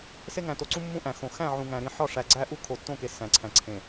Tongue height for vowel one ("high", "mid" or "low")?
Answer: mid